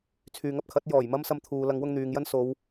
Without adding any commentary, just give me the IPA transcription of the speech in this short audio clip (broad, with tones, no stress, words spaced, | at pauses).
t͡sʰyː˨ŋɐ˧p̚kʰɐ˨˥t̚ jɔː˨˩jmɐ˥msɐ˧m t̪ʰuː˨ lɐ˨˧ŋwʊ˧ŋ n̪yː˨ŋjɐ˥nso˨˧w